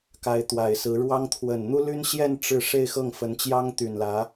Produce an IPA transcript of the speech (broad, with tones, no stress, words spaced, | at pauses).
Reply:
ka˧˥ɪ̯ t̪wa˨˩ɪ̯sɹ̩˧˥ɻwɑ˥ŋ t̪ʰwə˨˩nn̪u˥ly˥nɕjɛ˥˧n ʈ͡ʂɻ̩˥˧ ʂe˥˧ɪ̯xɤ˥˩ŋ fə˧˥nt͡ɕjɑ˥ŋt̪y˨˩nlä˧˥